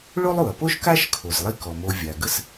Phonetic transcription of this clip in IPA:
ɭ o˥ lˠ u˩ ɐ̯ p o˥ ʃ k a˥ ʃ kʰ o˩ z lˠ i˥ k ɔ˩ m o˧ vʲ a˩ ɡ ə˥ s

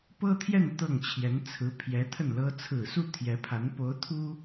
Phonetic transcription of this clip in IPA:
p ɤ˥ t̪ʰ j ɛ˥˧ n t̪ ɤ˥˩ ŋ t͡ɕʰ j ɛ˧˥ n t͡sʰ ɹ̩˧˥ pʰ j ɛ˧˥ t̪ʰ ə˥˩ n l ɤ˥ t͡sʰ ɹ̩˨˩ s u˥˩ t̪ʰ j ɛ˧˥ pʰ a˧˥ n p o˧˥ ʊ̯ t̪ʰ u˥

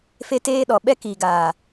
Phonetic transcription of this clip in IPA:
f e˦ t eː˦ ɗ ɔ˨ ɓ ɛ˦ k iː˨ ɡ aː˨

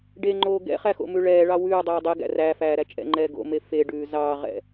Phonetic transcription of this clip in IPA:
ɖ e ŋ͡ǃ oː ɡ ɛ̰ χ æ x o̰ m ʉ ɭ ɛː ɭ ɑ w ʉː dˤ ɛː dˤ e ɡ æ̰ r æ f æː ɾ æ t͡ʃʼ ɛ̰ ŋ͡ǃ ɛː ɡ o̰ m e f e ɖ ʉː z ɑː ʁ ɛ̰

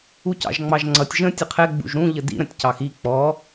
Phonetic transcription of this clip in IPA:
u c ɑ̰ ʒ ŋ͡m ɑ ʒ ŋ͡ǀ ʌ tʲ ʒ ə̃ tʲ ə qʰ ɛ ɡ͡b ṵ ʒ ɾ ũ ʎ ə d ḭ ɾ ə̃ tʲ c ɑ x i k͡p ɔ

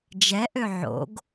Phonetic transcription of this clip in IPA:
d͡ʒ ɛ ʔ ø ʕ o̰ ɡ

